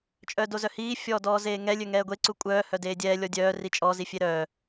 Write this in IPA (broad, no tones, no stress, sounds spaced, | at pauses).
t͡ʃʼ œ d o z œ h iː fʲ ɔː d ɔː z eː ŋ ɛ lʲ ø ŋ ɛː ɡʷ e ǀ u kʷʼ œː h œ d eː dʲ ɛː lʲ ɔ dʲ œː r i t͡ʃʼ ɔ z i fʲ e ɾ œː